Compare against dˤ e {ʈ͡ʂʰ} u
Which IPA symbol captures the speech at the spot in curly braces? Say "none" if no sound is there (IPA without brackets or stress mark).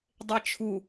t͡ʃʰ